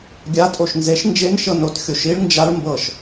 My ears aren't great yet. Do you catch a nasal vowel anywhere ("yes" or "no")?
no